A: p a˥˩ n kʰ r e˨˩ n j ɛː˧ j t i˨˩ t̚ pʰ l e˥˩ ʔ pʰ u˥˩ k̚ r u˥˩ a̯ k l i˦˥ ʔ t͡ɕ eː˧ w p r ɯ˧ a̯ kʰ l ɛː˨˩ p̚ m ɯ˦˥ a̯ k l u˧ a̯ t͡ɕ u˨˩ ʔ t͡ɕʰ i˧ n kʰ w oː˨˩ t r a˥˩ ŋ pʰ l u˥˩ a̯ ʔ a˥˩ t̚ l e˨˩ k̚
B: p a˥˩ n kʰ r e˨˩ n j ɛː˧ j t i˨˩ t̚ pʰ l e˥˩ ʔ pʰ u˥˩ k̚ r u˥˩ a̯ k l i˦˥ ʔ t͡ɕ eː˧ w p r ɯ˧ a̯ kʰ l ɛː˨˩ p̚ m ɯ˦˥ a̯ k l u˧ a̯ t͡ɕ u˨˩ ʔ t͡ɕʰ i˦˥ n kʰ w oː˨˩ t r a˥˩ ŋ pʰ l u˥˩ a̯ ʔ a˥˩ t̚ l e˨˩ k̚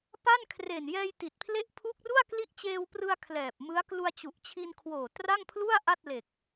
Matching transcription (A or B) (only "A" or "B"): A